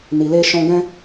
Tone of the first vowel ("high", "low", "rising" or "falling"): low